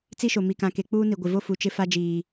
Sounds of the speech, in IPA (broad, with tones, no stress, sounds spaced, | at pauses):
t͡s i˦ ʃ o˨ m i˨ k ã˨ k e˨ k͡p uː˦ n i˨ ɡʷ ɪ˨ v o˦ f u˨ t͡ʃ ɪ˦ f a˦ d͡ʒ iː˨